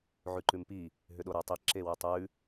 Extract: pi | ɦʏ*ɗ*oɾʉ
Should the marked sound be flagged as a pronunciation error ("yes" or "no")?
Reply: no